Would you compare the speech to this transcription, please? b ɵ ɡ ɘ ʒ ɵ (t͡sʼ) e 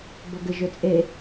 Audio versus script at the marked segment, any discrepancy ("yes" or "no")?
no